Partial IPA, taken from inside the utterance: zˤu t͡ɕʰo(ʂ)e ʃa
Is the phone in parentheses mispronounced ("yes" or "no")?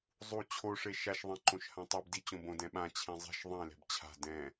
no